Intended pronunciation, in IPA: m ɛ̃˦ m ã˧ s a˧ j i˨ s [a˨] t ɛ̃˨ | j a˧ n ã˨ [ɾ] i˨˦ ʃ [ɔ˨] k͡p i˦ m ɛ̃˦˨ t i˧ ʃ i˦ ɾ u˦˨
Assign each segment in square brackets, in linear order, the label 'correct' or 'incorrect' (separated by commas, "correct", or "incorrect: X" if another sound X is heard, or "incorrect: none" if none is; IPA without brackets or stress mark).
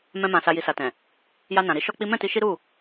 correct, correct, incorrect: ɔ˦